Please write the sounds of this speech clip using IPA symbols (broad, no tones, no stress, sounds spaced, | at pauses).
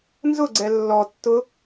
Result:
n z ʊ ɡ͡ǀ ɛ lː ɔ tː ʊ